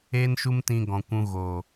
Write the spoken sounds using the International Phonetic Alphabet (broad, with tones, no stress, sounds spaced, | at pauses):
eː˦ n ʃ u˦ m t ĩ˧ ɡ ɔ̃˨ kʷ ũ˧ ɣ o˨